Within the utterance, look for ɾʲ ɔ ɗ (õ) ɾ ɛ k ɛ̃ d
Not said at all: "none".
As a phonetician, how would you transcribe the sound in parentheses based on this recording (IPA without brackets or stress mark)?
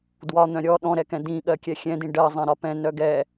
ɔ̃